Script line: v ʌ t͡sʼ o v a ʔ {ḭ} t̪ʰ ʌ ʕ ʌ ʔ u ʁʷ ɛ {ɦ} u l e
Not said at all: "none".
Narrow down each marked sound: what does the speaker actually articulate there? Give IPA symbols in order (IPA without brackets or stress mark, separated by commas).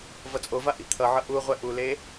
ḭ, ʔ